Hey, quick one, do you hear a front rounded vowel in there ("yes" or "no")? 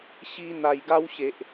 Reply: no